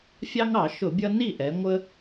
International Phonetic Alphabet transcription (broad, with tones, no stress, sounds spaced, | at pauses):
fʲ ɑ˦ ŋ ɑ˧˩˧ ʃ ʊ˧˩˧ bʲ ʌ˦ n i˥˩ ʔ ɛ˩˧ ŋʷ ə˦